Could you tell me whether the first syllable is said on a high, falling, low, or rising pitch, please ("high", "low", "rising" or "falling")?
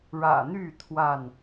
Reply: low